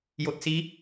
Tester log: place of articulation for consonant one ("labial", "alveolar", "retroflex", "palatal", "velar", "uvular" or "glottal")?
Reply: palatal